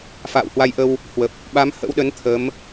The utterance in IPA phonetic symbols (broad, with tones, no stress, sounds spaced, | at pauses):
f a̰ː˧˨ w h w a˧ j ʔ ə˧ w | h w ə˨˩ p̚ | ɓ a˨˦ m h ə̰˧˥ w ɗ ə˨˦ n t̪ʰ ə˨˦ m